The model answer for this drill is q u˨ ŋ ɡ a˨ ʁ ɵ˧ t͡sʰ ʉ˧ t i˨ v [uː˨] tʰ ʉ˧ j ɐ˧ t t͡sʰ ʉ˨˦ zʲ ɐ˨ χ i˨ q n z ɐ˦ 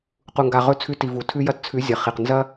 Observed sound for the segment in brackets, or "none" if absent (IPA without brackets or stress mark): u˨